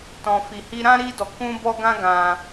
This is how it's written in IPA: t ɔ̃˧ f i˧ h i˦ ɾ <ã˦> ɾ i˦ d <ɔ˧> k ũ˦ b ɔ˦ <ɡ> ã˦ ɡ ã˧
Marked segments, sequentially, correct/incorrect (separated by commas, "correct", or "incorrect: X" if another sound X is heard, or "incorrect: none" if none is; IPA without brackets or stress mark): correct, correct, correct